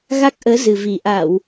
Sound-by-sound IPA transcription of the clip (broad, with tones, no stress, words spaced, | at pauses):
ɣa˦˥k̚ʔəː˨˦zɨ˨˩vi˨˩ ʔa˧˩˨w